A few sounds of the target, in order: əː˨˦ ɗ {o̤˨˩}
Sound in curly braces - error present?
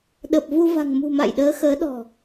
yes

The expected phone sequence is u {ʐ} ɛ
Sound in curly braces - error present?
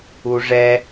no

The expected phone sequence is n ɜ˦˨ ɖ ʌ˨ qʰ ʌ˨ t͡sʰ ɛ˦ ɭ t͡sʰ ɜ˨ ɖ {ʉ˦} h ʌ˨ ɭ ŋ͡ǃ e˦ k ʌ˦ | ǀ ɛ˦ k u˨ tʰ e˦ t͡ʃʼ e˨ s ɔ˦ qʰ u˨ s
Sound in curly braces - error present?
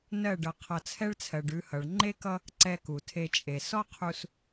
yes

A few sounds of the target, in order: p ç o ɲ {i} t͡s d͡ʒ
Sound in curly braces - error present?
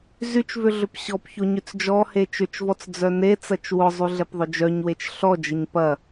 yes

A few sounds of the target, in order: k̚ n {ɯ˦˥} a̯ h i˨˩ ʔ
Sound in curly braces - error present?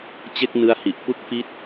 no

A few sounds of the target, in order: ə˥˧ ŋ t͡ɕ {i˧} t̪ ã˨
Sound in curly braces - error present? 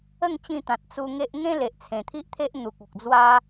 yes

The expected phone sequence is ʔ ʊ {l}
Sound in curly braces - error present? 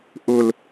no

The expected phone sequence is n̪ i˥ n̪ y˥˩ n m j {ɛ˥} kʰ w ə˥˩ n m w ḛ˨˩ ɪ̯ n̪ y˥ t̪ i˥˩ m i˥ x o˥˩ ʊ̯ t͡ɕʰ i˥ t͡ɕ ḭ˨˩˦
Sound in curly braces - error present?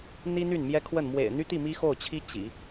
no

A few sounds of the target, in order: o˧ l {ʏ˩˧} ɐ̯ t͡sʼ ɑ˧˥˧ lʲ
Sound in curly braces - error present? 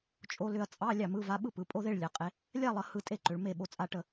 yes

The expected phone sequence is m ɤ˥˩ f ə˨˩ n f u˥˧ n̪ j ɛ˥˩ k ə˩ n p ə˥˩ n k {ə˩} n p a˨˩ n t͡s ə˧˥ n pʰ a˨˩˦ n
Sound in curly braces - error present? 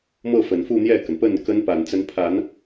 yes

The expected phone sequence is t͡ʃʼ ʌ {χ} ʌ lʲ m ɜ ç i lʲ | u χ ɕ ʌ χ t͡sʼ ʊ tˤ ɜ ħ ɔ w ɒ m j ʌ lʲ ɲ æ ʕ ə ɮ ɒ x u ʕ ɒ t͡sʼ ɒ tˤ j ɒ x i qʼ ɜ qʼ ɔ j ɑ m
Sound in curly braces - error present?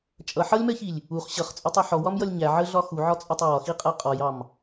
yes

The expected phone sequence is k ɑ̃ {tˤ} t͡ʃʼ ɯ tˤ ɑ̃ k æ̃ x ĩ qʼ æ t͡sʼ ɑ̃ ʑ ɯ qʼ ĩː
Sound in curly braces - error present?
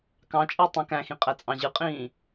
yes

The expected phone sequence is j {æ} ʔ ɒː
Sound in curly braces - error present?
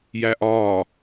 no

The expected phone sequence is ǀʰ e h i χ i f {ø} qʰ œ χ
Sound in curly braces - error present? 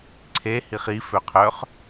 no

